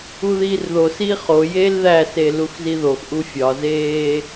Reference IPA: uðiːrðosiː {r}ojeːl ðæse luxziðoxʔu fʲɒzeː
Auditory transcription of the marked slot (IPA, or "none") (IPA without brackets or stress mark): χ